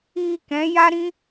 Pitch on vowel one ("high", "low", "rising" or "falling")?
low